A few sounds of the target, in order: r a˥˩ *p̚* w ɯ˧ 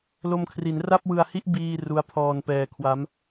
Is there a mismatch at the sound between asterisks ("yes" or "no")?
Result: no